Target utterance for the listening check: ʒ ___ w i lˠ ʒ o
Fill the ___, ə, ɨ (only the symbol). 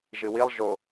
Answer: ɨ